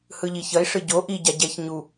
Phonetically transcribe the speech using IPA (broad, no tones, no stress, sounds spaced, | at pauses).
h ɯ ʎ i ç ʌ i̯ ʂ ɯ ɟ o ʔ i ɟ a ɟ ɛ ç ɲ u